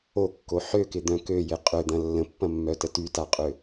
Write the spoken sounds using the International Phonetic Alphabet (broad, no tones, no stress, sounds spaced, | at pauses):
o kː o ħ ø k ɪ d̪ œ̃ k ø j ɪ qʼ ø d̪ ɐ̃ lː ə̃ pː ɐ̃ mː œ t ə t y t a qʼ ø